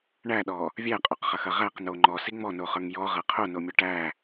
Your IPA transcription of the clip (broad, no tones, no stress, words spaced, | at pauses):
ɳæɗɔ | vʲæqʼoqχɐxɐ ʁæqno ŋ͡ǃɔsi ŋ͡mɔnoχə˞ŋ jɔʁɐ qʰonomʲɔ ʈæ